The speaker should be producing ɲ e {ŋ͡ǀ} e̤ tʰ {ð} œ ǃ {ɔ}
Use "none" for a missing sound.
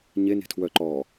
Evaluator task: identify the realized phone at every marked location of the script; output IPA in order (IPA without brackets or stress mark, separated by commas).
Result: n, w, ɔ